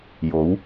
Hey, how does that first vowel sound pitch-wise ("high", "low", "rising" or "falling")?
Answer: rising